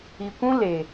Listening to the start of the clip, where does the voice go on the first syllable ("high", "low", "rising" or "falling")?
low